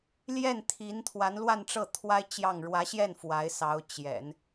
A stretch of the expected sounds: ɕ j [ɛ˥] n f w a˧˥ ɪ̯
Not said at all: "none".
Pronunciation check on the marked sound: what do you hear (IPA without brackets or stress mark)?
ɛ˥˩